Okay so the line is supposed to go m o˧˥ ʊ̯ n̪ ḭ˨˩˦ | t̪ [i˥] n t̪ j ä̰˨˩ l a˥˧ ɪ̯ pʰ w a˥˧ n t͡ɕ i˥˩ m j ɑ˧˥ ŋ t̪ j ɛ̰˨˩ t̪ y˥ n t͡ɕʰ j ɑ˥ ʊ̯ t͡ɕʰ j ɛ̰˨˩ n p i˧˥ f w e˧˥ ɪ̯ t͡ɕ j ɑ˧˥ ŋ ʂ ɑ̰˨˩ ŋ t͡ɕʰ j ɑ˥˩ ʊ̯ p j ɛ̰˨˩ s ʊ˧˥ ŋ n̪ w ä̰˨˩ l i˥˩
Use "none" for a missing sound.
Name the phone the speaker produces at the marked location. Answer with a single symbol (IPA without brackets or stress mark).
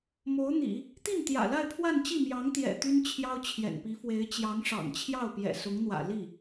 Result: i˥˩